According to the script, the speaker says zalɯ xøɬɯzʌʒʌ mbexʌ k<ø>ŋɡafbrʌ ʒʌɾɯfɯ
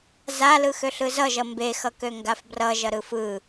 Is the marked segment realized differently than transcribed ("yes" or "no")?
no